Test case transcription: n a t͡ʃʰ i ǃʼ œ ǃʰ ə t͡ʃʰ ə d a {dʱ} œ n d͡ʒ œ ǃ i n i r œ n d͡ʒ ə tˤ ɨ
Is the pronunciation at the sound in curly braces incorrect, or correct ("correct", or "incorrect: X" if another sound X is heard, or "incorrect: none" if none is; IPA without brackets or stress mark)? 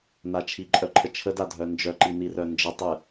correct